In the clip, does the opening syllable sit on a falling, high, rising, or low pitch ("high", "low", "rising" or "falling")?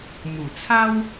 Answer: low